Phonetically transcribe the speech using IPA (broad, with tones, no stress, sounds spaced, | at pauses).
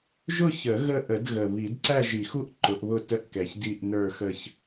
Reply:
ʒ ʊ˥˧ ç ə˨˩˦ ɣ ə˥˧ ʔ ə˨˩˦ d ɣ ə˨˩ β i˨˩˦ d ǀ æ˥˧ ʒ i˨˩˦ x u˥˧ ʔ ǃ ʊ˨˩˦ ʔ β ʊ˥˧ t ə˥˧ ʔ k ɛ˨˩ ç d i˥˧ ʔ n ə˞˥˧ x ə˥˧ ç